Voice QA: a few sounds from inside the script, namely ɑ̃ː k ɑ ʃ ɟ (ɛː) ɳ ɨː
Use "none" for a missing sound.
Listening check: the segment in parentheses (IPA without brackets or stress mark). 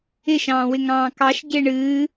ɪː